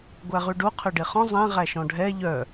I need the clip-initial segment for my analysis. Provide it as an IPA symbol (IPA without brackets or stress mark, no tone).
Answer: ɡʷ